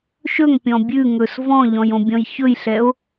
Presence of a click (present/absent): absent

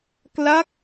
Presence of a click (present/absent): absent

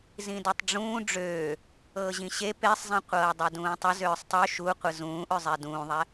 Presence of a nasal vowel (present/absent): present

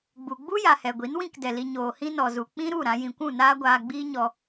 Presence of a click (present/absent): absent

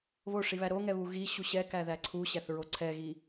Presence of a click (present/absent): present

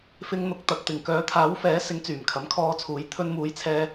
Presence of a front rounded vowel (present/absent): present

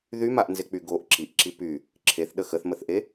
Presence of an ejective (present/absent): absent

